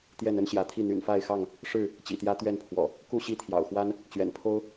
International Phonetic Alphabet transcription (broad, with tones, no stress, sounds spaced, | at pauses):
t̪ j ɛ˥˨ n ə˦ n ɕ j ä˨˦ t̪ʰ i˥˨ n̪ y̰˨˩ n f a˥˨ ɪ̯ x ɑ˥˨ ŋ | ʂ ɻ̩˥˨ | t͡ɕ ḭ˨˩ t̪ j ä˦ t̪ ɥ ɛ˥˨ n pʰ w ɔ̰˨˩ | k u˥˨ ɕ i˥˨ t̪ʰ j ɑ̰˨˩ ʊ̯ x w a˦ n | t͡ɕ ɥ ɛ̰˨˩ n pʰ o˦ ʊ̯